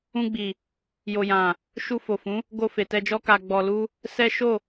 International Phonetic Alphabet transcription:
ũ˧ ɡ͡b i˨ | j o˨ j ã˨ | ʃ u˧ f o˨ f ũ˨˦ | ɡ o˧ f e˨ t ɛ˧ d͡ʒ ɔ˦ k a˧ ɡ͡b ɔ˧ l u˦ | s ɛ˦ ʃ o˦˨

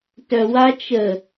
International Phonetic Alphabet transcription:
t œ w a t͡ʃ ə

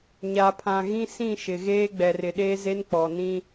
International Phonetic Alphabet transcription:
ɲ a˨ pʰ ã˨ ɣ ĩ˦ s ĩ˦˨ ʃ ɪ˨ ɣ eː˦ ɡ͡b ɛ˨ r ɪ˨ ɗ eː˦ z e˦ n k͡p ɔ˨ n ĩ˦

